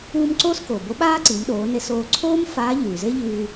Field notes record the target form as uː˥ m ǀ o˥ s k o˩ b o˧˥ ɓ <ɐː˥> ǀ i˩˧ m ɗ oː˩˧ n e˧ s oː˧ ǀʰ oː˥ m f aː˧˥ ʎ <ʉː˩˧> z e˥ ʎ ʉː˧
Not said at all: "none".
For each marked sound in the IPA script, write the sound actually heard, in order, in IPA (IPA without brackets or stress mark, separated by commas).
aː˥, ʉː˩